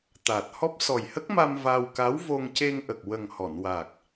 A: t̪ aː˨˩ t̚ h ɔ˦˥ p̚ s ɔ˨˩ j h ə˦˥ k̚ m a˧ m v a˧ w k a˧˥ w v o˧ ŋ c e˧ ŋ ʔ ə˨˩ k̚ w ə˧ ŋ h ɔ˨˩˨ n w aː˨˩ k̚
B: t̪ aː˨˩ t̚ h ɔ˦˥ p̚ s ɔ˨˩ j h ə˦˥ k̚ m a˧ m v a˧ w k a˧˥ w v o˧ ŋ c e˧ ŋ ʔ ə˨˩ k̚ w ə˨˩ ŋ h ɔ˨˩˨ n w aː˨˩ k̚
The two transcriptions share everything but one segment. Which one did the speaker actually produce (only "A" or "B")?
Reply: B